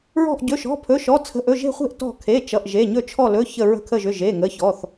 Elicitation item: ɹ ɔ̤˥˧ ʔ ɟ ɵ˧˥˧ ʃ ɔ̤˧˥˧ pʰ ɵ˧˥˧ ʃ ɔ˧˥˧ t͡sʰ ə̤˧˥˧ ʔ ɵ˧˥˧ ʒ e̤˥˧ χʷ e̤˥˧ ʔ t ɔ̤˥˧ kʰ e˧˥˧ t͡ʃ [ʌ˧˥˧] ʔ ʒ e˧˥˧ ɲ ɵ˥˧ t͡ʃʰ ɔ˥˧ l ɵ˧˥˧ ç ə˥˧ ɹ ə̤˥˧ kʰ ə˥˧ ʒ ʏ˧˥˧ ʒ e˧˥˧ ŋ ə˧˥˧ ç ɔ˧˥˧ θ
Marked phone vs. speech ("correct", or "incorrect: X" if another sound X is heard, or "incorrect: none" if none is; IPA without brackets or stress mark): correct